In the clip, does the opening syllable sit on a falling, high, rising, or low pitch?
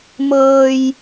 low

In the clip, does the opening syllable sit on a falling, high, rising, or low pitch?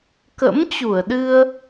rising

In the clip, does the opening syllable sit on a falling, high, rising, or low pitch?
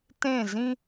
falling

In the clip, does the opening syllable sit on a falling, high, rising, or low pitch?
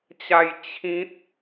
falling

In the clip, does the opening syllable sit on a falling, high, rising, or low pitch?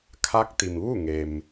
rising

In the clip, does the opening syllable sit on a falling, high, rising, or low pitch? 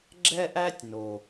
high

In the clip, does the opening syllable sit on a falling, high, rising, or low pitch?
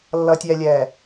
low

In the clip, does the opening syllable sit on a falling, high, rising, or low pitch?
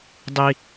high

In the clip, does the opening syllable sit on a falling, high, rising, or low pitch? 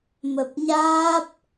low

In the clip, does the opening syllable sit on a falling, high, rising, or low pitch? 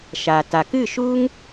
low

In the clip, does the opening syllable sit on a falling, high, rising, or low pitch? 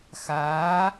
rising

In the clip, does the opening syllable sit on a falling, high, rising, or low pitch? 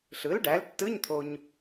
rising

